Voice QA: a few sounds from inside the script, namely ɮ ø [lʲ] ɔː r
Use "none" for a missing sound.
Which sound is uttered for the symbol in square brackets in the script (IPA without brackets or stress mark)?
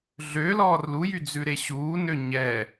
l